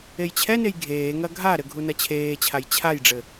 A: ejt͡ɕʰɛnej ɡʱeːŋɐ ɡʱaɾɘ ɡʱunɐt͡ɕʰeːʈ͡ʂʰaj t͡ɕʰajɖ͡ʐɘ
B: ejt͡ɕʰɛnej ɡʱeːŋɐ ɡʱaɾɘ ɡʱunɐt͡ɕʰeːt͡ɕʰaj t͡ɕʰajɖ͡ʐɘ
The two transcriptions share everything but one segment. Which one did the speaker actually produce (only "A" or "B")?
B